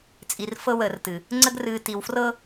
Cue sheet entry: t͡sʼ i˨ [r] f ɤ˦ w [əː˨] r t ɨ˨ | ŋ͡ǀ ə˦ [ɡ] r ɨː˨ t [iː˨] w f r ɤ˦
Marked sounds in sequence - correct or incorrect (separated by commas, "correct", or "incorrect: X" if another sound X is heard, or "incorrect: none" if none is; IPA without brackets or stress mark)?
correct, correct, correct, incorrect: i˨